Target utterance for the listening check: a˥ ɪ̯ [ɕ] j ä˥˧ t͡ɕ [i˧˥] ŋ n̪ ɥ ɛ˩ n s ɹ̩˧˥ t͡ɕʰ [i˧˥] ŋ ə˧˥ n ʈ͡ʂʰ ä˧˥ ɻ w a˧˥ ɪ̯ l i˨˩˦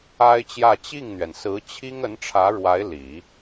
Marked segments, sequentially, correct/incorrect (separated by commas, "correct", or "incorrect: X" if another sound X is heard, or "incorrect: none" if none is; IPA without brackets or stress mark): incorrect: t͡ɕ, incorrect: i˥˩, incorrect: i˥